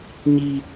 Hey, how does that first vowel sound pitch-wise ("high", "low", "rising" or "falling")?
high